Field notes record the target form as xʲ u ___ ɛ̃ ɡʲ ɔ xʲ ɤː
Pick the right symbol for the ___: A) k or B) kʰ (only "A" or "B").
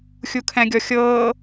B